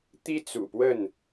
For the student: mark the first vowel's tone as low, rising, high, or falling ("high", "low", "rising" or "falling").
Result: high